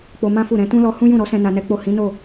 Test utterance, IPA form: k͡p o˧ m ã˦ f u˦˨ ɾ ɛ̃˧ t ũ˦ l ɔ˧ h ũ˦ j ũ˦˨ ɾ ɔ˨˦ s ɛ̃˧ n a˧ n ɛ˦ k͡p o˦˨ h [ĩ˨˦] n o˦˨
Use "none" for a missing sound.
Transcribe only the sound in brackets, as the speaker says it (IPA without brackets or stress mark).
ĩ˨˦